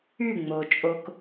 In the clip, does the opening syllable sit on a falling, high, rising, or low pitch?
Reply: falling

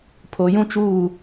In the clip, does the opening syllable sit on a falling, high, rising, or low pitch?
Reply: low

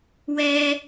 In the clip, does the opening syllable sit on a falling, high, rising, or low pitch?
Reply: high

